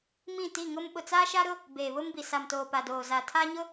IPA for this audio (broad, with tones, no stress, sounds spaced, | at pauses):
m ĩ˦˨ t i˦˨ ŋ ʊ˦ m ɓ ʊ˨ t͡s a˦ ʃ a˦ ɾ ʊ˦ | b eː˨ β ʊ˦ m b i˨ s a˨ m t oː˨ p a˨ d oː˨ z a˨ tʰ a˦ ɲ ʊ˦